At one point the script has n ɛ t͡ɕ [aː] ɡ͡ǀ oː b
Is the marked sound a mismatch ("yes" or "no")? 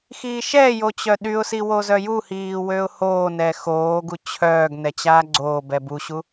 no